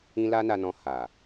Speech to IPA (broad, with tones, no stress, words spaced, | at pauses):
ĩ˦ la˦na˧nɔ̃˧ ha˨